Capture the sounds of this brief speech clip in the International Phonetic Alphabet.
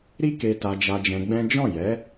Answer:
ɾ i˦ k e˧ t a˧ d͡ʒ a˧ d͡ʒ ɛ̃˧ ɡ͡b ɛ̃˦ d͡ʒ ɔ̃˦˨ j ɛ˨˦

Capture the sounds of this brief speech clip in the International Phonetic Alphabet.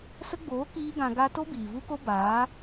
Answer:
s ə˦ ɡ͡b oː˨˦ k iː˦ ɡ ã˧ ɡ a˦ t o˦ b iː˨ v u˦ k o˦ b aː˨˦

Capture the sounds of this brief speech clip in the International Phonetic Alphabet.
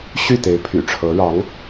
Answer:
ɕ y˥˩ t̪ e˧˥ ɪ̯ pʰ y̰˨˩ ʈ͡ʂʰ ɤ˧˥ ɻ ɑ˧˥ ŋ

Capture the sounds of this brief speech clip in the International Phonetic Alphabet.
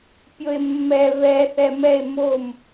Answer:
pʲ o e̯ mː ɛ β ɛ θ ɛ m ɛ e̯ m o m

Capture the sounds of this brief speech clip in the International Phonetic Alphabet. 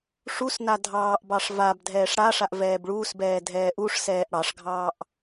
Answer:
ʂ u s n a dʱ ɑː ʔ b ɑ ʂ v a b dʱ ɛː ʂ ɽ a ʂ a ʔ v ɛː b ɭ uː s b ɛː dʱ ɛː ʔ u ʂ s ɛː ʔ ɽ ɑ ʂ ɡʱ ɑː ʔ

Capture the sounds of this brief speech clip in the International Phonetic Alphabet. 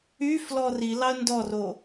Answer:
y f l ɔ r i l ɑ ə̯ n d ɔ r o

